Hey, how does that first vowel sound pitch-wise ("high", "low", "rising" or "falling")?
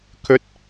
rising